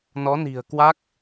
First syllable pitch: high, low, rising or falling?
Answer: rising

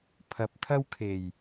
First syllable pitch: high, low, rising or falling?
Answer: rising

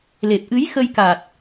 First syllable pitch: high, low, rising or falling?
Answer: low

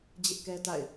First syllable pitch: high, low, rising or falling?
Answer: high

